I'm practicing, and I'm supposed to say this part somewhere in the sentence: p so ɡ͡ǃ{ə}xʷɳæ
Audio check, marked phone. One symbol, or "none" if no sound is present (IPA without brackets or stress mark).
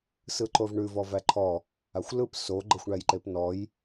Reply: ə